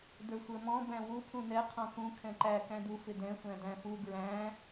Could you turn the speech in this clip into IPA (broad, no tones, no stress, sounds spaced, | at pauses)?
d ə˞ sʷ ə˞ m ɔ̃ b æ̃ w u pʰ ũ n ɛ qʰ ɔ̃ k ũ kʰ ɛ̃ ǃ æ k æ̃ d u f ɪ d ɛ̃ sʷ æ̃ d æ̃ f u ɡ ɹ æ̃